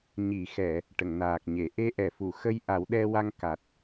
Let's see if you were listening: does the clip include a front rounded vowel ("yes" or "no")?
no